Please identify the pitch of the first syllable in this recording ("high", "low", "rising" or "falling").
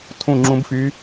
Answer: falling